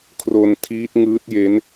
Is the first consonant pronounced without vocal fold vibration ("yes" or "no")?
yes